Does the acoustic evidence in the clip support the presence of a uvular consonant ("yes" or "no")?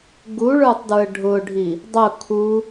no